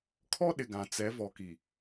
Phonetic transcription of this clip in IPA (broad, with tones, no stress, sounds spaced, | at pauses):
kʰ ɔ˦ ɗ ɪ˨ ɡ ã˨ t͡s ɛ˨˦ v ɔ˨ k i˨